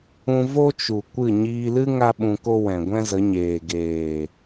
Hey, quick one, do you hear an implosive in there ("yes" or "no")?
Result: yes